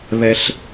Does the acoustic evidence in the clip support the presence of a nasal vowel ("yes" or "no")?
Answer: no